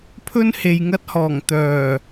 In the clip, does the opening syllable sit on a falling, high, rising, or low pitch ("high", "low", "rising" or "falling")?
high